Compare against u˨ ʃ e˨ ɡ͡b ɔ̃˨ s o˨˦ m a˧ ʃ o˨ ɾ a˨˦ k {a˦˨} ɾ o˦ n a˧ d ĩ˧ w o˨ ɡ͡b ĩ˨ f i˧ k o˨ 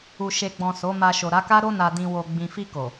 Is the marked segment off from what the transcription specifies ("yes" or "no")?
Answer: yes